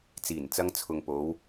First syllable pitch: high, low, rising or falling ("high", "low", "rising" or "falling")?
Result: low